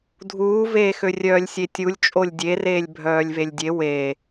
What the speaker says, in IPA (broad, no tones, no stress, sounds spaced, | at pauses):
dʱ uː v eː x ø rʲ œː lʲ sʲ e tʲ u lʲ t͡ʃʼ o lʲ dʲ e r eː lʲ bʱ œː lʲ v e lʲ dʲ e w e